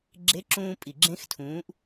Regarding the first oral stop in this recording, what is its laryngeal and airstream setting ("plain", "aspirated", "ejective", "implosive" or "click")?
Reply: click